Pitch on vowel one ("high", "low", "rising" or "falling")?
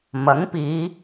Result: rising